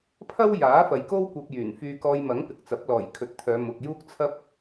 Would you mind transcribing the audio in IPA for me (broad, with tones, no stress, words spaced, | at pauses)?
pʰɐ˥wjaː˨˥ fɐ˨jko˥w kʷɐ˧p̚jyː˨˩nfyː˧ kɔː˧jmɐ˨˥ŋ pɪ˨k̚t͡sɐ˨˥p̚ lɔː˨˩j kʰɵ˨t̚ t̪ʰœː˨˧mʊ˨k̚ juː˥k̚t͡sʰɐ˥p̚